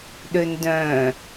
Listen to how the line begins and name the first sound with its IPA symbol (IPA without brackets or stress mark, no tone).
ɗ